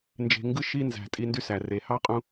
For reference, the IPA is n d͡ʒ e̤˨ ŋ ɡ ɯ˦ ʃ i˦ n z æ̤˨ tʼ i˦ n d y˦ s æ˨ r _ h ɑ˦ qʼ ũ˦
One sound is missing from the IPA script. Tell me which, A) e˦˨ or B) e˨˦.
B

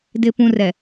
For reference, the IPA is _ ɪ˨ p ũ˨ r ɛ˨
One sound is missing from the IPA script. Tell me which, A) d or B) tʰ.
A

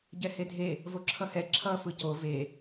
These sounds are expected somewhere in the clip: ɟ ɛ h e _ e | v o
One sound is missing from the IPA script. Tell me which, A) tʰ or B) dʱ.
B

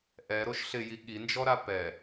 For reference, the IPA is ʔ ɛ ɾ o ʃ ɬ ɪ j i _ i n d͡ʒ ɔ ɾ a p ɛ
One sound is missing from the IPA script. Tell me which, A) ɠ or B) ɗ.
A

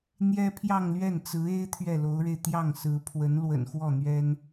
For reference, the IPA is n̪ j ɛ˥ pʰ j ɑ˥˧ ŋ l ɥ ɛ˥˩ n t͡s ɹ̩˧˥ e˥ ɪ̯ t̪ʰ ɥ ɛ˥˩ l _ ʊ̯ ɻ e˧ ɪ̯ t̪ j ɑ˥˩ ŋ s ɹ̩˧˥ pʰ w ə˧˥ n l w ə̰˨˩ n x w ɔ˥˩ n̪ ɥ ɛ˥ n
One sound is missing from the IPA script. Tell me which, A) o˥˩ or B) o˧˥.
B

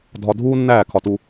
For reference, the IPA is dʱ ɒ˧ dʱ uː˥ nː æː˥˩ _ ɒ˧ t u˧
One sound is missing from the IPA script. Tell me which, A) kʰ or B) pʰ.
A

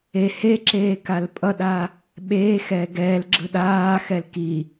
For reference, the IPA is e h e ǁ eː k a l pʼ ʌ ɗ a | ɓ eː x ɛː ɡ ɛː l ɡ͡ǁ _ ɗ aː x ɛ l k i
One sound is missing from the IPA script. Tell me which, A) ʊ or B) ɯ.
B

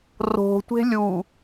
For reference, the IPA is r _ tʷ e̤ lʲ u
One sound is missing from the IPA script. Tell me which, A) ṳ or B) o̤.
B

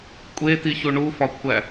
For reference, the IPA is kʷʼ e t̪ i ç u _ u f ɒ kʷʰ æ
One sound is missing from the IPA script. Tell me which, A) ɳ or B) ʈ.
A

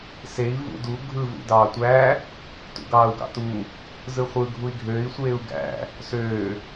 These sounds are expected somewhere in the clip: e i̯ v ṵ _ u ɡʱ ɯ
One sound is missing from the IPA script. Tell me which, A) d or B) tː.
A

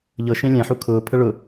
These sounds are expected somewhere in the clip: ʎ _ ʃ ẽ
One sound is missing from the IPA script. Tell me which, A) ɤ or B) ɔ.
A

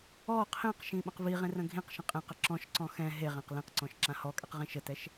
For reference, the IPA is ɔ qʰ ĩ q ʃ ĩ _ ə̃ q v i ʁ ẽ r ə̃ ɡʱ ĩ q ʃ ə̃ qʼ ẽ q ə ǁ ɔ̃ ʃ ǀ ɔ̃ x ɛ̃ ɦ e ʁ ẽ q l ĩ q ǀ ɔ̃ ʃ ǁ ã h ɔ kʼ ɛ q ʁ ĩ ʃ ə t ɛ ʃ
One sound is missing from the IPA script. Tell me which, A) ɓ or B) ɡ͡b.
A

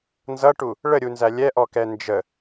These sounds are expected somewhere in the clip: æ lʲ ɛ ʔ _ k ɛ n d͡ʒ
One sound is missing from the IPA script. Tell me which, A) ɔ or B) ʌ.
A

